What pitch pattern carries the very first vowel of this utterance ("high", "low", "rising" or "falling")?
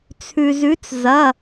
low